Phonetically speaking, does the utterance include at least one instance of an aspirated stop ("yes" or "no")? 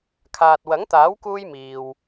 yes